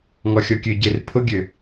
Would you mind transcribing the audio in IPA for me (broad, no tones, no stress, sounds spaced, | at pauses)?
ŋ ɔ xʲ ɔ kʲ ø ɟ e r pʰ ʊ ɡʲ ø